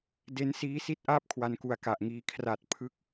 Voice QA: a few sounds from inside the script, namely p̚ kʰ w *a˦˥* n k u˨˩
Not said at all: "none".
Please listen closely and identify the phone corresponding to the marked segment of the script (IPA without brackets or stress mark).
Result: a˧